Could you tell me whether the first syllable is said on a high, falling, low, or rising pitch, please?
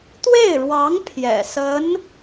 falling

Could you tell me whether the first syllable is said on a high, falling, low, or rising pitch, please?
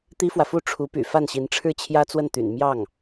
high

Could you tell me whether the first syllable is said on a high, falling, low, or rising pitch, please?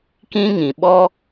high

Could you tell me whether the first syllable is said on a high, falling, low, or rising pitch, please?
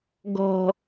low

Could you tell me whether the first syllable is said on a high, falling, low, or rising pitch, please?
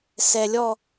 low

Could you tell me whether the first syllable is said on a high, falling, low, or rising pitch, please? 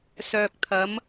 low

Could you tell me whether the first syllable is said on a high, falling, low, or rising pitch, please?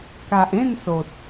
low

